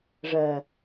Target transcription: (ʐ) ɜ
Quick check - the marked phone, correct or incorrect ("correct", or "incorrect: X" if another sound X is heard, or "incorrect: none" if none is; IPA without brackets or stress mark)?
correct